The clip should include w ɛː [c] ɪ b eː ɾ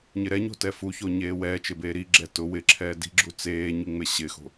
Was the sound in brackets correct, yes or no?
no